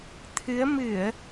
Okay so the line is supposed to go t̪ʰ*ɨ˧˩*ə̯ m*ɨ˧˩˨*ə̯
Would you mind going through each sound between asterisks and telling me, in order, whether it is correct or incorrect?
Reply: incorrect: ɨ˨˦, correct

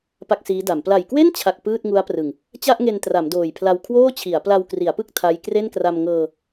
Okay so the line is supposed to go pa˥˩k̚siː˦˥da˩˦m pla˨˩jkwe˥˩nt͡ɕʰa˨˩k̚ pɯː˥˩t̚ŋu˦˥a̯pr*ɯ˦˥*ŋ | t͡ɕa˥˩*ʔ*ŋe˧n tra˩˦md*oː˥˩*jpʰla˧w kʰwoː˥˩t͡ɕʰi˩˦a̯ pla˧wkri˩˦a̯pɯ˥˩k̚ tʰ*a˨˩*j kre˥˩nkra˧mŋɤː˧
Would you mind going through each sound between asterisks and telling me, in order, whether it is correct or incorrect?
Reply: incorrect: ɯ˨˩, correct, incorrect: oː˨˩, incorrect: a˦˥

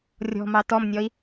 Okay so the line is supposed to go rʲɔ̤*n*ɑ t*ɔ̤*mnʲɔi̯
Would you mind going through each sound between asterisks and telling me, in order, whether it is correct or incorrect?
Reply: incorrect: m, incorrect: ɔ

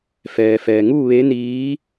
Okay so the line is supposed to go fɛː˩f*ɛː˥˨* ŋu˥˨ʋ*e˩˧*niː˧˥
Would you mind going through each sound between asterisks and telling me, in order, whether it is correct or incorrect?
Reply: incorrect: ɛː˩, incorrect: e˧˥

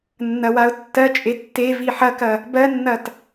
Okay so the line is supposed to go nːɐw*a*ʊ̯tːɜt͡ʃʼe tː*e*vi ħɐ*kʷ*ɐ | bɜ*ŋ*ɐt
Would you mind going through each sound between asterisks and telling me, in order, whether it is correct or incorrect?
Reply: correct, correct, incorrect: k, incorrect: nː

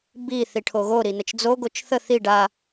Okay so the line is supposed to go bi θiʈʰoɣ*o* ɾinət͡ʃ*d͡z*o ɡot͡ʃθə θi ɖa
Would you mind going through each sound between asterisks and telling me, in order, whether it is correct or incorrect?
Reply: correct, correct

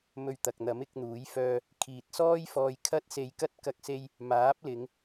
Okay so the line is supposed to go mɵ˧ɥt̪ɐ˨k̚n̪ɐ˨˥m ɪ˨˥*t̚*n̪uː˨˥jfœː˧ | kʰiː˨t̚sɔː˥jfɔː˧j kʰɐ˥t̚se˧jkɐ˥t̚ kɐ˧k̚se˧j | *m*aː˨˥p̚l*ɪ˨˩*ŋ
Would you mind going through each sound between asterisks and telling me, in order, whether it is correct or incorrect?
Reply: incorrect: k̚, correct, incorrect: ɪ˨˧

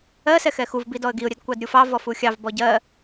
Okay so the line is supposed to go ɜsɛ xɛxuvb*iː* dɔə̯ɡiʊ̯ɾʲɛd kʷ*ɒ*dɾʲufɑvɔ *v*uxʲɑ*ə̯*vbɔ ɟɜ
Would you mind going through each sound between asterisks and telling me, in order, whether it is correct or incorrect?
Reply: incorrect: i, incorrect: ɑ, incorrect: f, incorrect: none

